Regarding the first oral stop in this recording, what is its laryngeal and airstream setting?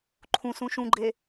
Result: click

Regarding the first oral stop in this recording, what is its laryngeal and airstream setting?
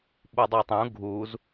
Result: implosive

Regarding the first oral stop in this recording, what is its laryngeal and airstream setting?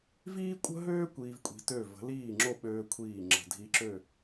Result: ejective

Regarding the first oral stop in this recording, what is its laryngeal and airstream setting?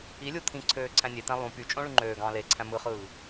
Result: aspirated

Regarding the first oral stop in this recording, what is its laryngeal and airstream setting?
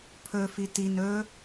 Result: aspirated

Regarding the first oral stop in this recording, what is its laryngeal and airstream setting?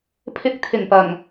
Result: aspirated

